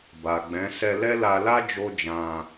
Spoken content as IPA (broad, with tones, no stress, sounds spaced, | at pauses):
b a˨ ɡ͡b ɛ̃˨˦ s ɛ˧ l ɛ˦ l a˧ l a˦ d͡ʒ o˦ d͡ʒ ã˧